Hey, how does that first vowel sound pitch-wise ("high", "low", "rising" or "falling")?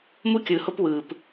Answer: high